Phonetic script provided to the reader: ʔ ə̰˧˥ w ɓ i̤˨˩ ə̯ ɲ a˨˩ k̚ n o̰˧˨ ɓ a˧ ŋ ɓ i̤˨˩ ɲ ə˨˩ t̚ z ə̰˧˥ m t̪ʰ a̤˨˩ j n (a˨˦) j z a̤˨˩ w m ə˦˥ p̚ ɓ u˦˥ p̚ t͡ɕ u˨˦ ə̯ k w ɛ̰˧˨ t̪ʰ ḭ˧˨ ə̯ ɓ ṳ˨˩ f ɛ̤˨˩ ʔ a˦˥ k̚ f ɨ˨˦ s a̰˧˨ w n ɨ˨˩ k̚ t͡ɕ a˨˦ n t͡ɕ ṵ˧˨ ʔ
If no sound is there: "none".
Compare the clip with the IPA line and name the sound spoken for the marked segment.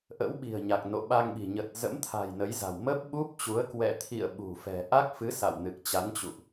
ə˨˦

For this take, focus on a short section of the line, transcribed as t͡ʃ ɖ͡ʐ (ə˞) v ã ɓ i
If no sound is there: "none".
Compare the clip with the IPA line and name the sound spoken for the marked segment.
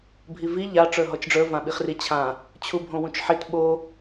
ə˞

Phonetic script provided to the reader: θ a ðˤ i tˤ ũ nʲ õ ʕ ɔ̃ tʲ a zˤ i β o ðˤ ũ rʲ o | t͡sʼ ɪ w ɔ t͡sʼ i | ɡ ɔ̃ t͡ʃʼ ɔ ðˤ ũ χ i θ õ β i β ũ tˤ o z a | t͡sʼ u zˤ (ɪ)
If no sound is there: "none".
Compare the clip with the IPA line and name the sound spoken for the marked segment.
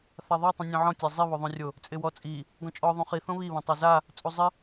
ɪ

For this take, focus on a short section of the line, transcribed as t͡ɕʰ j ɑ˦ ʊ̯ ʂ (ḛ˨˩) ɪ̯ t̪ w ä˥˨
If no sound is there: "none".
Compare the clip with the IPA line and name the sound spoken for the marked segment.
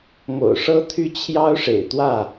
ḛ˨˩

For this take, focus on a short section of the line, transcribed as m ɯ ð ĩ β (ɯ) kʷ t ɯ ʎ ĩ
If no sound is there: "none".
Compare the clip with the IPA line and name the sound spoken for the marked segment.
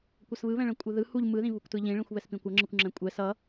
u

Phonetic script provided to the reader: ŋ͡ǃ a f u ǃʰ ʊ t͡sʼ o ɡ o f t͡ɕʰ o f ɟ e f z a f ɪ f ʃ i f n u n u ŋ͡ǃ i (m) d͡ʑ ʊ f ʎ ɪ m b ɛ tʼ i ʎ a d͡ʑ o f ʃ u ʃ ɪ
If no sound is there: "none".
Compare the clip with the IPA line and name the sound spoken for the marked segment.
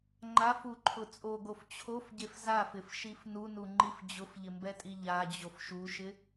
f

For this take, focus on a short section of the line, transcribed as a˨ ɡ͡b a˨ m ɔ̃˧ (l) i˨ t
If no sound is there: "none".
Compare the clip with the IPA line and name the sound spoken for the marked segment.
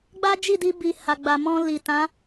l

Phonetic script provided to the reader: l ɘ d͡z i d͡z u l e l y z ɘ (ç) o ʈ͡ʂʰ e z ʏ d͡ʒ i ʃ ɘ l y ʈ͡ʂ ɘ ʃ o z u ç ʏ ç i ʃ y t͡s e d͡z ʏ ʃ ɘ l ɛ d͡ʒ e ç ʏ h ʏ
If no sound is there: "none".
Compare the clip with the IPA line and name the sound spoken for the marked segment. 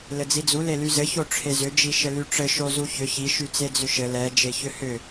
ç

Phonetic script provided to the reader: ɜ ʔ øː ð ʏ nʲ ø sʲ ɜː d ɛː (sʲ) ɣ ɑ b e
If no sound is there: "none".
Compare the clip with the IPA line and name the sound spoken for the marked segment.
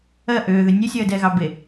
none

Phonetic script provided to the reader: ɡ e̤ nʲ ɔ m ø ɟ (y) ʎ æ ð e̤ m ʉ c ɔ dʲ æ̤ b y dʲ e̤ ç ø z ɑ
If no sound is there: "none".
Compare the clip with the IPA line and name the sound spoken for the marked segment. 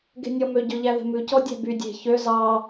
ø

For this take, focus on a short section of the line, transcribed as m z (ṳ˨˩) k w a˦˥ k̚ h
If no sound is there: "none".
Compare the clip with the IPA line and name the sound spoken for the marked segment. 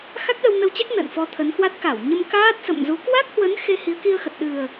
u˨˦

